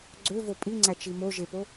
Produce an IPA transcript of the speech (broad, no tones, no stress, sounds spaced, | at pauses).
ɡ͡ǀ ø v o pʼ i ŋ͡ǀ æ t͡ʃ i m o ʒ e p o